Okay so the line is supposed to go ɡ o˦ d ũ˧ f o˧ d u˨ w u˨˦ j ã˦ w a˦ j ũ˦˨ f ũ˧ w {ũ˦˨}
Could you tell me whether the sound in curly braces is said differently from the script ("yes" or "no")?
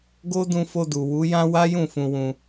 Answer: yes